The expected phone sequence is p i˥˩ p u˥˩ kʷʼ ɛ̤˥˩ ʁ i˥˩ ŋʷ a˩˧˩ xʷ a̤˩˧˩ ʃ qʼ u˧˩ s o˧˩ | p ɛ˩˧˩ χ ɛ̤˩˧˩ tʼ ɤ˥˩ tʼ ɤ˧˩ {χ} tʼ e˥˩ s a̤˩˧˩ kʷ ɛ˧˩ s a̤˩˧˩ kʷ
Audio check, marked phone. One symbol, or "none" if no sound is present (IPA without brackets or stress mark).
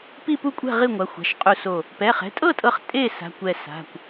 χ